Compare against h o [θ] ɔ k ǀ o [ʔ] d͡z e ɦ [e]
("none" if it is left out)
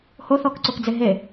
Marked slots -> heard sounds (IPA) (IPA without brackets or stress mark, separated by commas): θ, k, e